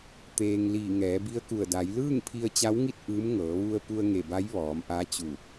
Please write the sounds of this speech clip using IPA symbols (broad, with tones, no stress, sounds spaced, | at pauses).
t̪ eː˧ ŋ l iː˧˩ ŋ ɛː˩˧ b i˧˥ ə̯ k u˧˩ ə̯ d a˩˧ j l ɯː˥˨ ŋ pʰ i˧ ə̯ t͡ɕ a˧˥ w ŋ i˥˨ t̚ ʔ ɯː˧˥ m ŋ ɤː˩˧ ʋ u˧ ə̯ p u˧ ə̯ ŋ e˧˩ b a˧˥ j ʋ ɔː˩˧ m ʔ a˧˥ t͡ɕ u˧˩